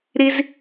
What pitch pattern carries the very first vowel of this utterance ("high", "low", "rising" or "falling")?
high